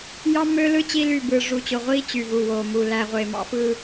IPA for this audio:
j ɑ˦ m ø˦ l ɯ˦ t͡ɕ i˦ l y˦˨ b ɯ˨ ʐ u˨ t͡ɕ o˨ ʁʷ iː˦ t͡ɕ y˨ v u˨ w oː˨ m u˨ l æ˨ ʁʷ e˨ m ɑ̰˦ f ɯ˦

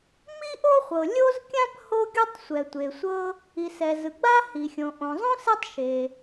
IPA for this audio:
m i˥ ʔ o˥ χʷ ɤ˩ lʲ o˥ z kʲ ã˥ p h o˥ ɡʲ o˥ tˤ sʷ ɛ˩ tʷ e˩ sʷ ɤ˥ | i˩ s ɛ˩ z ɯ˩ ɡ͡b a˥ h i˩ xʲ õ˩ ʔ õ˩ zˤ õ˥ s ɛ˥ tˤ ʃ e˩

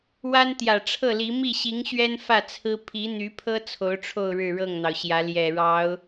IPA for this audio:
w a˥ n t̪ j ä˨˩ ʈ͡ʂʰ ɤ˥˩ l i˧˥ m i˥˩ ɕ i˧˥ ŋ ɕ ɥ ɛ˥ n f ä˥˩ t͡sʰ ɹ̩˥ pʰ i˧˥ n̪ y˧˥ pʰ ɤ˥ t͡sʰ o˧˥ ʊ̯ ʈ͡ʂʰ o˥˧ ʊ̯ ɻ ɻ̩˥˧ ɻ ɤ˥˩ ŋ n̪ ɑ˩ ʊ̯ ɕ j ä˧˥ l j ɛ˨˩ ɻ ɑ˧˥ ʊ̯

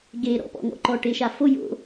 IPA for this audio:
ɡ e ɾ ɔ̰ p ɔ̰ ŋ ɔ̰ ǃ ɔ ʈ e ʃ a f o j o̰

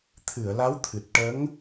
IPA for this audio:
t̪ʰ ɨ˨˩˨ ə̯ l a˧˥ w t̪ʰ ɨ˨˩ t̚ ʈ ə˧˥ ŋ

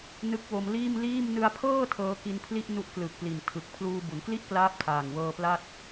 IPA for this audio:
n ɯ˦˥ k̚ w o˧ m l iː˥˩ m l iː˥˩ m n ɯ˧ a̯ pʰ ɤː˥˩ tʰ ɤː˦˥ k i˧ n pʰ l i˥˩ ʔ n u˦˥ ʔ k l ɯ˨˩ k̚ p l i˨˩ n tʰ ɯ˨˩ k̚ pʰ l uː˧ b u˩˦ n k l i˥˩ ʔ k l aː˦˥ p̚ tʰ aː˨˩ ŋ w ɤː˧ p l a˥˩ t̚

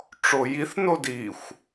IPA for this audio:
ʈ͡ʂ o j i θ n o d i xʷ

